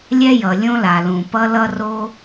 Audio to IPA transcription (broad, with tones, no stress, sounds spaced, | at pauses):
lʲ ɛ˥ j ʌ˩ lʲ õ˥ l a˩ l ũ˩ p ʌ˥ l ʌ˥ r o˥